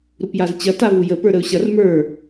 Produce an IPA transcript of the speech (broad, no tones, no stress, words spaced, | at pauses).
ɾupjazt͡ɕɐ tavujə pə˞ɾəʊ̯ɕɐr mə˞